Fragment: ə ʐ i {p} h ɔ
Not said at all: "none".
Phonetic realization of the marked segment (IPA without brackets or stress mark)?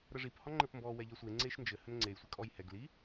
p